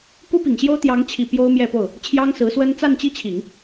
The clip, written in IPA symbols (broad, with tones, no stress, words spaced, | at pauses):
ku˥pi˨˩ŋɕjo˥ʊ̯ t̪jɑ˧˥ŋt͡ɕʰi˨˩ pjo˥ʊ̯mjɛ˥˧po˥˩ʊ̯ | t͡ɕʰjɑ˥ŋsɹ̩˧˥swə˥n t͡sa˥˧nt͡ɕi˥˩t͡ɕʰi˨˩˦ŋ